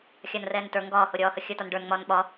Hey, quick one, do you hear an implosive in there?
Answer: yes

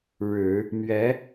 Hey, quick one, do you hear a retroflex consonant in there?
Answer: yes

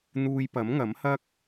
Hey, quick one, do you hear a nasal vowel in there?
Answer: no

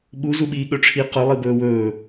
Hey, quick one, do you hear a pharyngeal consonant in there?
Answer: no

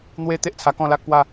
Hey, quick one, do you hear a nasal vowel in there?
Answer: yes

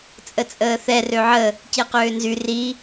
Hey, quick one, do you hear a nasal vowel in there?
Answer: no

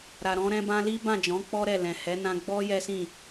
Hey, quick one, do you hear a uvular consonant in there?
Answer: no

